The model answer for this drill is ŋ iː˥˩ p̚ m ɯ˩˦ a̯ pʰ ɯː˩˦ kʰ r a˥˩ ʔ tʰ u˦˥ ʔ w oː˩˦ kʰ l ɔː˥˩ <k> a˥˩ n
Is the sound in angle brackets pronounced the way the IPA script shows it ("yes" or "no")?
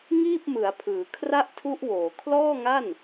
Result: no